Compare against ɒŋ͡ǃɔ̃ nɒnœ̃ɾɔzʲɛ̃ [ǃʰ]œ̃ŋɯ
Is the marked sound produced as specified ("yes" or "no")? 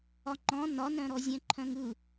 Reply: yes